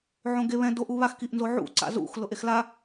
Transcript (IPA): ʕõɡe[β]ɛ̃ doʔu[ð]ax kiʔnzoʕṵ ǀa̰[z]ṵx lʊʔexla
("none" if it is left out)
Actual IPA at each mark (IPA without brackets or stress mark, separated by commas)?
β, β, z